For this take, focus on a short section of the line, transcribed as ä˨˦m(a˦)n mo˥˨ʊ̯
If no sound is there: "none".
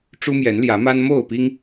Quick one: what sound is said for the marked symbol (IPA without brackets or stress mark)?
a˦